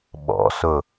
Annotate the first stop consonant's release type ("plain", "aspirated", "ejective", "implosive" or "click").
implosive